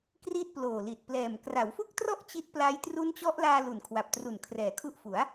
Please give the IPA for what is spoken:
k r i˥˩ t̚ p l oː˨˩ l i˨˩ t̚ p l ɛː˨˩ m k r a˩˦ w f u˥˩ k̚ t r ɔ˥˩ ʔ t͡ɕ i˦˥ t̚ p l a˦˥ j t r u˦˥ n t͡ɕ ɔ˦˥ ʔ l aː˧ l u˨˩ n kʰ w a˨˩ p̚ t r u˨˩ n kʰ r ɛː˩˦ kʰ u˦˥ ʔ f u˩˦ a̯

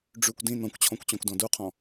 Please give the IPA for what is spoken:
ɖ͡ʐ ʉ kʷ d ĩ n ɔ̃ kʷ t͡ɕʰ ɔ̃ kʷ t͡ɕ ɔ̃ kʷ d ɔ̃ d u qʰ ɔ̃

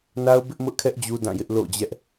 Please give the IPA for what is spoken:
n a˦ ʊ̯ b ɪ˦ ʔ m ʊ˦ ʔ kʰ ɛ˦ ʔ d͡ʑ u˦ d ã˦˨ j ɪ˦ ʔ l o̰˦˨ d͡ʑ ɛ˦ ʔ

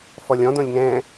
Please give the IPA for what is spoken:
f ɔ lʲ ɔ̃ d õ lʲ ŋ ɛ̃

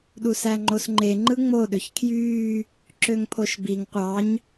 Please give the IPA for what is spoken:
ɗ u s æ ŋ͡ǃ o s ŋ͡ǃ e ŋ͡ǃ ɯ ŋ͡m o ɗ ø ç kʰ j yː | ǁ ø ŋ pʰ o ʃ b i ŋ qʷ ɑ ɲ

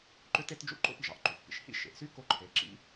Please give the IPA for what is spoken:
ǃ ø˥ t e˥ t d͡ʒ ṵ˧˥ ǃ o̰˥ p d͡ʒ ɑ˩ ʔ ǃ y˩ xʷ p ḭ˩˧ ʃ h ḭ˥ ʃ ḛ˩˧ ʔ s y˥ k o˧˥ ǃʰ e˩˧ ǁ ḭ˧˥

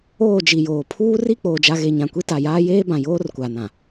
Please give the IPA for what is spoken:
oː˦˨ d͡ʒ i˨ j oː˨ pʰ uː˦ r i˦˨ k͡p oː˨ d͡ʒ a˨ ɣ e˨ ɲ ã˨ kʷ i˦ t a˨ j aː˦ j eː˦ b ã˨ j oː˦ r kʷ a˨ n ã˨

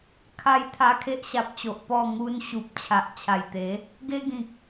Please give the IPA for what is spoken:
kʰ a˦ j t̪ʰ a˧ kʰ e˦ ʔ ɕ a˨ p̚ t͡ɕ o˨ ʔ p ɔ˥˧ ŋ u˦ n ɕ u˨ p̚ t͡ɕʰ a˨ ʔ t͡ɕʰ a˨˩ j t̪ e˨˦ | ɡ e˦ ɡ ĩ˨ k̚

